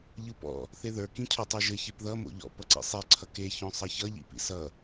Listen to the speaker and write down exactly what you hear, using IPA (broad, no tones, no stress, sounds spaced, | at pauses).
ʎ ɯ p ɔ̰ | θ e ð ə˞ k ĩ cʰ o tˤ ə˞ ʒ ɘ ç e p ð ʌ m o̰ ʎ ɔ̰ p ʌ ǀ ḭ sˤ e ǀʰ ʌ k e ç ɔ̃ sˤ ʌ ç ʌ ʎ ḭ p ḭ s ʌ